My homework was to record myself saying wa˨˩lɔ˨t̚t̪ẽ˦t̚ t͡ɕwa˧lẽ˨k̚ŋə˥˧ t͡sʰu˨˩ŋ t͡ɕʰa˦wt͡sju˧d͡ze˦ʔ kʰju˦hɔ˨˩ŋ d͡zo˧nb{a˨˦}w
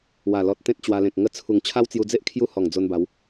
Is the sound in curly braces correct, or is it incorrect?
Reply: correct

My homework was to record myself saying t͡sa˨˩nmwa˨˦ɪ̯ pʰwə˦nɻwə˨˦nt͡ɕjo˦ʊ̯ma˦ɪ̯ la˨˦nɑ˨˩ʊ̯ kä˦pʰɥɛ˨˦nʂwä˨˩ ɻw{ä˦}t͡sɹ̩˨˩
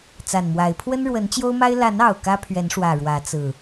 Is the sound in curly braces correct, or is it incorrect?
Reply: incorrect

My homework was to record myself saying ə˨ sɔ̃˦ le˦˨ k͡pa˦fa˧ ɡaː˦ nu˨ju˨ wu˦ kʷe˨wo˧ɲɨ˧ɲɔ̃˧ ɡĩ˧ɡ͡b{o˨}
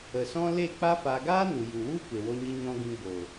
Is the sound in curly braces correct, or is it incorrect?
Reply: correct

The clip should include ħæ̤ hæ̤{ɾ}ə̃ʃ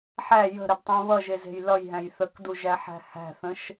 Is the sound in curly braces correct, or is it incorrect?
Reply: incorrect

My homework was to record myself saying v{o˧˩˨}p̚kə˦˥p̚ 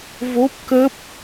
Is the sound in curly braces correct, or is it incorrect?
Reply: incorrect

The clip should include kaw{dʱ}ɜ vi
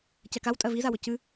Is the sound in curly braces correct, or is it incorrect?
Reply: incorrect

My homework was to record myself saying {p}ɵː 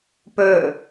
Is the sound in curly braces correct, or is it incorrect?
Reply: correct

